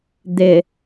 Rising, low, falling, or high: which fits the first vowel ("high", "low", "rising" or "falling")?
low